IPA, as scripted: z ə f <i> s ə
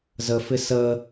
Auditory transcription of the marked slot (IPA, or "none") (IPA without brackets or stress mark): ɪ